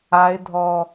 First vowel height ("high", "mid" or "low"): low